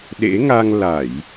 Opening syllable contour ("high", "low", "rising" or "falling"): rising